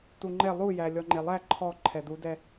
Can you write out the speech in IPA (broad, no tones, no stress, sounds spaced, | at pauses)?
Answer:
t u ŋ͡ǃ ɛ lˠ u j æ lʲ ɔ ŋ͡ǃ e lˠ æ ǃʰ ɔ ǃʰ ɛ d u d ɛ